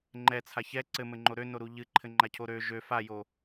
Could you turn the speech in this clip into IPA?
ŋ͡ǃ ɛ t͡sʰ a ç ɛ ǀ ɘ m ɘ ŋ͡ǃ o ɾ ø n o ɾ u ʎ ɨ ǃʰ ɘ ŋ͡ǃ a cʰ o ɾ ø ʒ ø f a j o

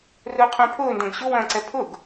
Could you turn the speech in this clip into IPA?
r ʊː qʰ œ̃ pʰ ʊː n d ɐ̃ ɡ ɕ ʊ w ɐ̃ː ǀ ɛ pʰ ʊ ɡ

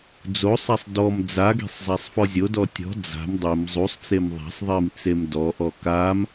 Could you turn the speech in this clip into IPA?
d͡z o sˤ a sˤ d ɔ m d͡z a ɡ e̤ sˤ zˤ a sˤ f ɔ zʲ o d ɔ tʲ ɔ̤ d͡z a̤ m dˤ i m zˤ u sˤ t͡s e m ðˤ a̤ sˤ ðˤ i m t͡s e m d ɔ ʔ ɔ k a m

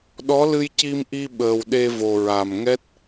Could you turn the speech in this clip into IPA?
ɗ ɔ˧˥ l ɨ˧ j c i˧ m ʔ i˧ ɓ əː˨˩ w ɗ e˧ v o˨˩ ɹ a˨˩ m ŋ ɛ˦˥ t̚

